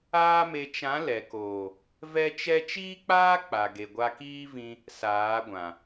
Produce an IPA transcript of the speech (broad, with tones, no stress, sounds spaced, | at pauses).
aː˦ m e˧ t͡ʃ ã˨˦ l ɛ˨ k oː˨ | v ɛ˦ t͡ʃ ɛ˦ t͡ʃ iː˦ k͡p aː˦ k͡p a˨ ɡ e˨ ɡʷ a˧ k iː˦ v ĩ˧ | s aː˨˦ ɡʷ ã˨